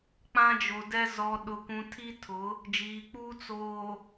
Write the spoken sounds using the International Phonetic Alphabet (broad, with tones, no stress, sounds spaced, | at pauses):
k͡p ã˦ d͡ʒ o˨ d ɛ˦ z ɔ˨ ɗ ʊ˨ kʷ ũ˨ tʰ i˦ tʰ ʊ˨˦ | d͡ʒ iː˨ k͡p uː˦ t͡s oː˨